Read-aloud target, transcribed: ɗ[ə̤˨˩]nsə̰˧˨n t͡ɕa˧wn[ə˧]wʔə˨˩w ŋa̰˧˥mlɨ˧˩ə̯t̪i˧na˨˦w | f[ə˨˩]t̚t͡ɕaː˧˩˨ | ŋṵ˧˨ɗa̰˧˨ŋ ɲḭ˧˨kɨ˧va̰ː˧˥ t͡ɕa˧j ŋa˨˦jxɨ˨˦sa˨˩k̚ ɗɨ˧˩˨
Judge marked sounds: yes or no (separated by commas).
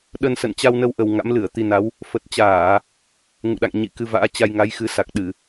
no, yes, yes